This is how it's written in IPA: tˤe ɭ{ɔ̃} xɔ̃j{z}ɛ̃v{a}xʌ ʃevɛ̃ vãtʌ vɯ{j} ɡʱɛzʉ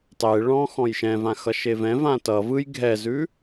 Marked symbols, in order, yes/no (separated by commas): yes, no, no, yes